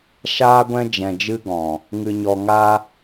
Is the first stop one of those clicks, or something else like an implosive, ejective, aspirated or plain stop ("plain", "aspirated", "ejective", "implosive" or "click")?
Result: plain